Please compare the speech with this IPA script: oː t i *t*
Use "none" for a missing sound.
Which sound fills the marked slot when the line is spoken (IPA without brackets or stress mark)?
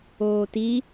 none